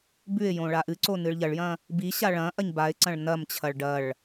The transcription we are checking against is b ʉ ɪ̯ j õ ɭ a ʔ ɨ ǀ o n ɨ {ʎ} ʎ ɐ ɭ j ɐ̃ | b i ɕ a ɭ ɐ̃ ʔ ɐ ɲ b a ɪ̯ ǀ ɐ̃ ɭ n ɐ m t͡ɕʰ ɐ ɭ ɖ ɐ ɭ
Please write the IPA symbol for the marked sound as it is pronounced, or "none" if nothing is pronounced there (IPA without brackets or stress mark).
ɭ